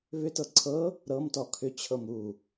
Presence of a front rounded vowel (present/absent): present